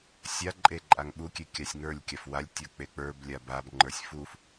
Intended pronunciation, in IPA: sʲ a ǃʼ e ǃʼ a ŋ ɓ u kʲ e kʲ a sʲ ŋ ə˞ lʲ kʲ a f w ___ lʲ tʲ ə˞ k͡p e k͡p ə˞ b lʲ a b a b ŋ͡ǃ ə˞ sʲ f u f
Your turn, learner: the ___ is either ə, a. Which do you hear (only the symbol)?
a